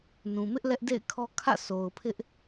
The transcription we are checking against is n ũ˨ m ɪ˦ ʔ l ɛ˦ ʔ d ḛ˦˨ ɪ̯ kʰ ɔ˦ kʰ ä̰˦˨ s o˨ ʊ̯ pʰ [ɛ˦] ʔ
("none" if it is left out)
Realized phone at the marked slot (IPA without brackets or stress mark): ɪ˦